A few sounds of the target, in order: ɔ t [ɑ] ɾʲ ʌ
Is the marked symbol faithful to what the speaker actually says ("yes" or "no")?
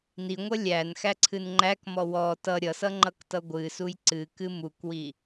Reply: no